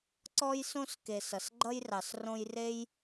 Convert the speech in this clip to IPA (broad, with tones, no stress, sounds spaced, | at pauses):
ǀ ɔ˥ j s õ˥ s k e˨ s ʌ˩ s ɡ͡ǃ ʌ˥ j r ɑ˩ s r õ˦ j r e˥ j